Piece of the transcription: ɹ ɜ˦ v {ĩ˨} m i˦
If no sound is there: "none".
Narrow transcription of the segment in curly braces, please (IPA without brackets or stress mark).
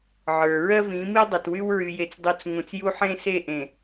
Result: ĩ˨˦